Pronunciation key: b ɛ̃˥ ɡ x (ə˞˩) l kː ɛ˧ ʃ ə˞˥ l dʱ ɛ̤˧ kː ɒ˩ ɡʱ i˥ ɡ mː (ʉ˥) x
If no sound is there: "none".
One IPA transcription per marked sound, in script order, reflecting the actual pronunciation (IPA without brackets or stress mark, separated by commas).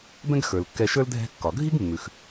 ə˞˩, ʉ˩